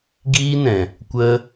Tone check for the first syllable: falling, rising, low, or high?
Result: high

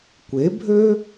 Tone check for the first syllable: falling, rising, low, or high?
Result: rising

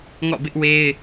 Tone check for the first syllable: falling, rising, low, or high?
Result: falling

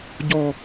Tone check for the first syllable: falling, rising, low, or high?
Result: falling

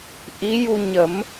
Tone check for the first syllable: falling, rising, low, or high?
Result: rising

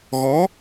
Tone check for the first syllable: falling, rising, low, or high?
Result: rising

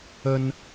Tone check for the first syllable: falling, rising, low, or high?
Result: high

